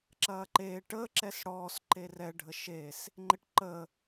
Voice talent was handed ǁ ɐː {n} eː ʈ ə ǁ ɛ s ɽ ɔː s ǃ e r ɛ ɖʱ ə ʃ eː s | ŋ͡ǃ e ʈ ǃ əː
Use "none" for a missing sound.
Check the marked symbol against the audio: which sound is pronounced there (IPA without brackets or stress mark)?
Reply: ǃ